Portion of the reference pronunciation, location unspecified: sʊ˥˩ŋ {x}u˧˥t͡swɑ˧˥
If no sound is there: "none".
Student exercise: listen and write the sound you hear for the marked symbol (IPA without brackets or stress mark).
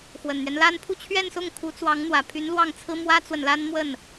kʰ